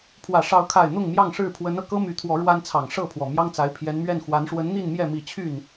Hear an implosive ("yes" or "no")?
no